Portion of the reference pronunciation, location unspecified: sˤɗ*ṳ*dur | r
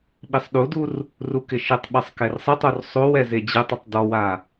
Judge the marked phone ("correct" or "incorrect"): incorrect